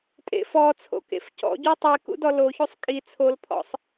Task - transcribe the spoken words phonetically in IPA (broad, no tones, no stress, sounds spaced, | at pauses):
tʼ ḛ f ɔ t͡sʰ o̰ k ḛ f c ɔ̰ ɟ u tˤ i k ṵ d ɔ l o ç u sˤ kʼ i t͡sʰ o l pʰ ɔ̰ sˤ